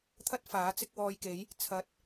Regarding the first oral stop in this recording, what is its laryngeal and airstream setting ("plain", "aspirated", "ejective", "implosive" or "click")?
aspirated